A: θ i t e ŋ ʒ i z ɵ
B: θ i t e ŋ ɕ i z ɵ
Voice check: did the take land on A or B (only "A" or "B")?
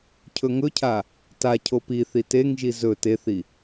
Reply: A